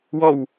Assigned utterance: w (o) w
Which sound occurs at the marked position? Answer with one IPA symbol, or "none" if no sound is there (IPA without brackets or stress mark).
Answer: ɔ